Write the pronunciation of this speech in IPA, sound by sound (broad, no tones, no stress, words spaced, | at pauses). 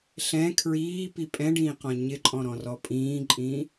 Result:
ɬɛ̃ kʰɹiːpi pʼɛ̃ɖĩːqɔ̃ ɲɪǃʼɔ̃ɾɔ̃rɔ pʼĩːǃʼĩː